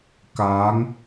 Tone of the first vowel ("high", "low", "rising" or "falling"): rising